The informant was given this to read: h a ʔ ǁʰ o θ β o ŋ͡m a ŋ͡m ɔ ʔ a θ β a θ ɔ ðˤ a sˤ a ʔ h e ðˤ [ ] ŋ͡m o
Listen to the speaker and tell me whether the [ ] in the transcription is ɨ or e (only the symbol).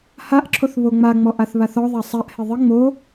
ɨ